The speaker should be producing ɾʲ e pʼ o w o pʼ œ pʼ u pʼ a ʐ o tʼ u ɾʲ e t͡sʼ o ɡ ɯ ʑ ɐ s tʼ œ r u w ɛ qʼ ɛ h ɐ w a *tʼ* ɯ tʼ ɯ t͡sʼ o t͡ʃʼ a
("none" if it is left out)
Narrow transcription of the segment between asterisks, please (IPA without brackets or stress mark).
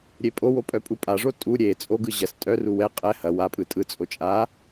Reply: pʼ